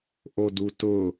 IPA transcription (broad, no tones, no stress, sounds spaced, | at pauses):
ʔ o d u t ʊ